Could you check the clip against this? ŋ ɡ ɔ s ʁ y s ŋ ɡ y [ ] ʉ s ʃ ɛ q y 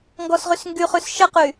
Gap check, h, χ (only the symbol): χ